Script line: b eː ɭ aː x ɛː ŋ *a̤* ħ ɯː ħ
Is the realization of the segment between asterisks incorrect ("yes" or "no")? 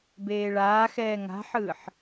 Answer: no